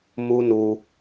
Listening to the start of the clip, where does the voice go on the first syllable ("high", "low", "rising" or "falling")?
high